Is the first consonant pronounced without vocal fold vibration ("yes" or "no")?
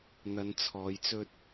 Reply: no